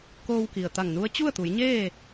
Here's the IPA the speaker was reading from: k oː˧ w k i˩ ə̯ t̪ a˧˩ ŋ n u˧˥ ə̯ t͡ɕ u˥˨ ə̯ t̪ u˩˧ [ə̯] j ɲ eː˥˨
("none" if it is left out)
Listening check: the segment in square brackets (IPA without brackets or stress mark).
none